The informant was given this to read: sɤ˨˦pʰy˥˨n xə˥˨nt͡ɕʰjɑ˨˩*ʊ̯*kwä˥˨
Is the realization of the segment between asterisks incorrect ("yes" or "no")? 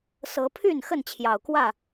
no